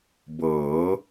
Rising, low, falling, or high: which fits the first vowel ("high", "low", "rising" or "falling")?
rising